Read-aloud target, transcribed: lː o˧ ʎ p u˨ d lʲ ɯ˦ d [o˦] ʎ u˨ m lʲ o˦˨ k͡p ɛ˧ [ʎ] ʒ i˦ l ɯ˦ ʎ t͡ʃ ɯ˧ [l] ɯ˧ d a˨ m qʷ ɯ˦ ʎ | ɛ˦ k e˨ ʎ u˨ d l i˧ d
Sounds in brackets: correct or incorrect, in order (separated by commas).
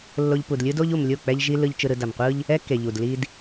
correct, correct, incorrect